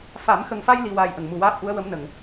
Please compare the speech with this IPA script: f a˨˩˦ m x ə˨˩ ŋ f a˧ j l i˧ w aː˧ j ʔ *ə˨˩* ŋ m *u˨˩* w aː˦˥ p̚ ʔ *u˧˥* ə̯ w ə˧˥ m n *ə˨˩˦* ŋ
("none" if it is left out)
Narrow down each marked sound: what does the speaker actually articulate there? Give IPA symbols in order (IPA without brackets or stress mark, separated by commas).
ə˨˩, u˨˩, u˧˥, ə˨˩˨